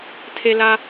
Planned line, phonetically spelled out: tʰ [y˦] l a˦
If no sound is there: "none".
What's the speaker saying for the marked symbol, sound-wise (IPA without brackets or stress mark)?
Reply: e˦